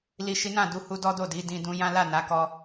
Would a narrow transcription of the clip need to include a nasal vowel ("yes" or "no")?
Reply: yes